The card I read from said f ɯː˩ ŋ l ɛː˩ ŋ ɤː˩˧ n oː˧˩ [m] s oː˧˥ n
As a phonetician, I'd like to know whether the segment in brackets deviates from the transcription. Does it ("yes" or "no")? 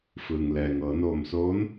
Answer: no